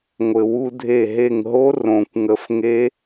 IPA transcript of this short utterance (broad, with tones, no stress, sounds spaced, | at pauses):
ŋʷ ɘ˩ w u˧ dʱ e˧˩ ɦ e˧˩ ŋ ɦ o˦˥ r õ˩ kʷ ŋ ə˧˩ f ŋ e˦˥